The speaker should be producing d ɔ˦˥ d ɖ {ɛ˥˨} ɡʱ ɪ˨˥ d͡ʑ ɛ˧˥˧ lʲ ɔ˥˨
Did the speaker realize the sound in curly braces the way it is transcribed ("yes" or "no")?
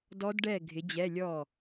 yes